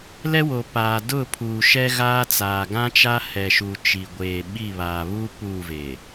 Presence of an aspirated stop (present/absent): present